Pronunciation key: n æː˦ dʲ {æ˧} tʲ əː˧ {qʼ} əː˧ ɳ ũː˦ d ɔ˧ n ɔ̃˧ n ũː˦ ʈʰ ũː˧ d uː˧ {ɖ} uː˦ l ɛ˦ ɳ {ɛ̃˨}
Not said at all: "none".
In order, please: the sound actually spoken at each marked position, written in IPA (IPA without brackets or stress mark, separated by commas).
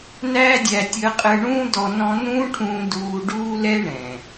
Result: æ˧, qʼ, ɖ, ɛ̃˨